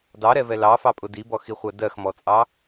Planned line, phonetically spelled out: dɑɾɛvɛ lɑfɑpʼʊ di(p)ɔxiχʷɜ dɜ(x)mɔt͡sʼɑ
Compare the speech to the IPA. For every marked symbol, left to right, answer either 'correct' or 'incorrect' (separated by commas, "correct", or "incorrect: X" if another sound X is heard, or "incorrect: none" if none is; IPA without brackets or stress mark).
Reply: incorrect: b, correct